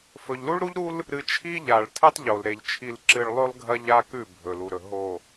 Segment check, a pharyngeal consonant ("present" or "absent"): absent